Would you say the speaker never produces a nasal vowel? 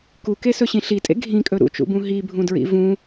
no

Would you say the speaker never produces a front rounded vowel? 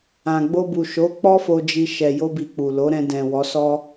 yes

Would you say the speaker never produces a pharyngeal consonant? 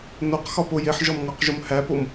no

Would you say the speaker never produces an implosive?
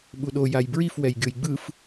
no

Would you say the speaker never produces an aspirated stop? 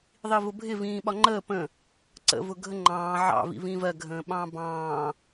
yes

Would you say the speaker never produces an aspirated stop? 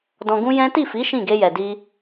yes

